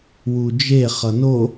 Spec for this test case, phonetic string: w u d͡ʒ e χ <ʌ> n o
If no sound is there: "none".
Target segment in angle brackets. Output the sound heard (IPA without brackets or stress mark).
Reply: ʌ